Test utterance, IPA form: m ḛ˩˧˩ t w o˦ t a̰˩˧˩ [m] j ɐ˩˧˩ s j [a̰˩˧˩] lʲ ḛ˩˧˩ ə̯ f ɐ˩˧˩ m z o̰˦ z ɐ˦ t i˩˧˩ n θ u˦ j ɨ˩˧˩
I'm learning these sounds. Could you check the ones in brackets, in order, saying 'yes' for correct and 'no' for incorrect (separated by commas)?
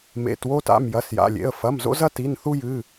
yes, yes